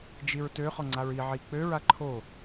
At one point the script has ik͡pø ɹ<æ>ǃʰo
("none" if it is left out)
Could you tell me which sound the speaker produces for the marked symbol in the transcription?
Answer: a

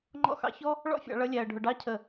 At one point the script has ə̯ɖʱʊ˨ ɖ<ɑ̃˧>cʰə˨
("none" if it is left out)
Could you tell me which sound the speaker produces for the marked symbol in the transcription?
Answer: ɑ˧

